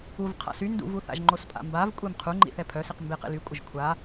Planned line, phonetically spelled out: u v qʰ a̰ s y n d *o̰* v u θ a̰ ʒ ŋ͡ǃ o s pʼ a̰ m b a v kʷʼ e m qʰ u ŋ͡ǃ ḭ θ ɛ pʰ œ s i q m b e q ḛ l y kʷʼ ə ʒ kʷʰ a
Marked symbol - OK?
no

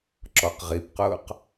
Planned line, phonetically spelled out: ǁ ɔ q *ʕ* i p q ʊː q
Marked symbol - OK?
no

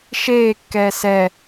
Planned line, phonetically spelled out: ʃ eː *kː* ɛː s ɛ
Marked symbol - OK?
yes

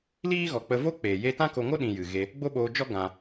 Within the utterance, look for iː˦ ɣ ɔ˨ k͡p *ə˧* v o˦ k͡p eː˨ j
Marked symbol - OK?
yes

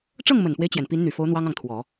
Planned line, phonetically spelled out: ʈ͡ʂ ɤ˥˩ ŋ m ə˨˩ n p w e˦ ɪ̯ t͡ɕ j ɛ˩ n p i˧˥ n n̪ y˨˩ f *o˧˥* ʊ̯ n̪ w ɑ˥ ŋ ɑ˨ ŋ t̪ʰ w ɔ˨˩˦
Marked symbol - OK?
yes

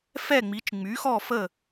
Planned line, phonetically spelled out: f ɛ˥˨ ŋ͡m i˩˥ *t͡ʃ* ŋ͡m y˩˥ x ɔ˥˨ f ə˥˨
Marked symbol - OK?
yes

